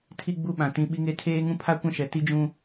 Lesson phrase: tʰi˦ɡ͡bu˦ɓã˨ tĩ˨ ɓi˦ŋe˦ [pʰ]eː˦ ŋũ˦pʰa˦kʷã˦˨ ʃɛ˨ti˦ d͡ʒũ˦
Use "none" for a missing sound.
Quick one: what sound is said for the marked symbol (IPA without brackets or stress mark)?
tʰ